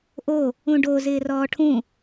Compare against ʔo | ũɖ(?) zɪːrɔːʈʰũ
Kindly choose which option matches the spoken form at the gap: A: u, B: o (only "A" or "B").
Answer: B